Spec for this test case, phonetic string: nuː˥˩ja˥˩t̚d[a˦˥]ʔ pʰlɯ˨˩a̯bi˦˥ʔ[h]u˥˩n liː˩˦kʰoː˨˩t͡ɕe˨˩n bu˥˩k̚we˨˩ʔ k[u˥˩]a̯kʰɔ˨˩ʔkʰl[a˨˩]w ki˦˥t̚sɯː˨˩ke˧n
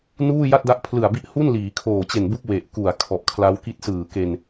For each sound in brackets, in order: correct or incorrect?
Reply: correct, correct, incorrect: u˨˩, incorrect: a˦˥

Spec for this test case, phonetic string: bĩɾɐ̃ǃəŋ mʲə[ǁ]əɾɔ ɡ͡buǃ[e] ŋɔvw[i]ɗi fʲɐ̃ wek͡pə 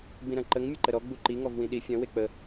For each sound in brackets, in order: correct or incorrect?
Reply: incorrect: ǃ, incorrect: i, incorrect: ĩ

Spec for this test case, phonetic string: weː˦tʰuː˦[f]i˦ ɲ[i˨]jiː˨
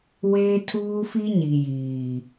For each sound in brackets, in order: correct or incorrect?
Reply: correct, correct

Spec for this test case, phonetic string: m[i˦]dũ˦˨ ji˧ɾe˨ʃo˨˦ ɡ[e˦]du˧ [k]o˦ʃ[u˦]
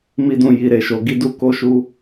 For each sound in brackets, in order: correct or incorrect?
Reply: correct, incorrect: i˦, correct, correct

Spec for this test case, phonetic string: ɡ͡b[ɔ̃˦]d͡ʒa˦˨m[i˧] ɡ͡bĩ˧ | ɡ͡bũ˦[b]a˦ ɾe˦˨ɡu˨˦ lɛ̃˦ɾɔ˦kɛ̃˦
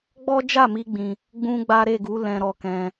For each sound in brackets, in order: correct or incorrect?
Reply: incorrect: ɔ˦, correct, incorrect: ɡ͡b

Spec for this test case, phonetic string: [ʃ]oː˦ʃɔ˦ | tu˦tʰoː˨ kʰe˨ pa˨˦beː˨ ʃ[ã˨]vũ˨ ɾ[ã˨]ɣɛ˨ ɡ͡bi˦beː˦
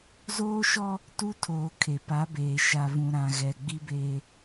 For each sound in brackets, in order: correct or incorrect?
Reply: incorrect: z, incorrect: a˨, correct

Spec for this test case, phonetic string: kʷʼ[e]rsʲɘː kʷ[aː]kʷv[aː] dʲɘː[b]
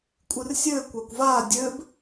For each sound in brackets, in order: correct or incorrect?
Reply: incorrect: ɨ, incorrect: a, correct, correct

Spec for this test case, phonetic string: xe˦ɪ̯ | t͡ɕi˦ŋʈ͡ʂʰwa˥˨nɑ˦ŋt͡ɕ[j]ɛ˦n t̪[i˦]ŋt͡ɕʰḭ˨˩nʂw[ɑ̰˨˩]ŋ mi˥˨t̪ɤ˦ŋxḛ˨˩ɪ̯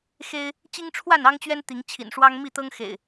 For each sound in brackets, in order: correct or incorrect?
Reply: incorrect: ɥ, incorrect: i˨˦, incorrect: ɑ˦

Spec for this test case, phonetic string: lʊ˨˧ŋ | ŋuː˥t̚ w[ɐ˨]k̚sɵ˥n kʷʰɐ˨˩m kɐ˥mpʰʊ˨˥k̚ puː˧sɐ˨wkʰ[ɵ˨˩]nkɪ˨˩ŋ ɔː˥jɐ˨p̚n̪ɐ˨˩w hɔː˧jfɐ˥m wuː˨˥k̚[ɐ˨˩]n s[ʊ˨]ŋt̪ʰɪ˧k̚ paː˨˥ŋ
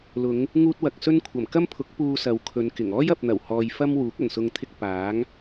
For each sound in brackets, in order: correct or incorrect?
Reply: correct, incorrect: ɵ˨˧, correct, correct

